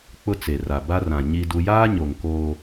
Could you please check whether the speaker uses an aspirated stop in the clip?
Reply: no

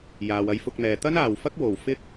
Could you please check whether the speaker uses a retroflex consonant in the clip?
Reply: no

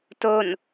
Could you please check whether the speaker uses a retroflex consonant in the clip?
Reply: no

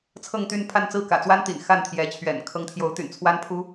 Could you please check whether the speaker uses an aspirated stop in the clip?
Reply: yes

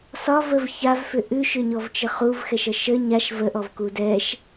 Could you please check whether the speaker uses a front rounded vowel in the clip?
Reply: yes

